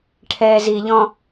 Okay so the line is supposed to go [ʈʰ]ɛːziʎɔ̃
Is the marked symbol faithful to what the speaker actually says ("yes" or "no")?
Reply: yes